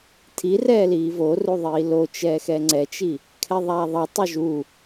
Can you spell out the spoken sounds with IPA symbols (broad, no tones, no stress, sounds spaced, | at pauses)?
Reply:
tʰ i r ɛː l iː v o r u ðˤ iː l o t͡ʃ ɛː x ɛ ŋ͡ǀ ɛ t͡ʃ i | kʰ ɛ ðˤ aː ðˤ ʌ tˤ u ʒ u